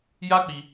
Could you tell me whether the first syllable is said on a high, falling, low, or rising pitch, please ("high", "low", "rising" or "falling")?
high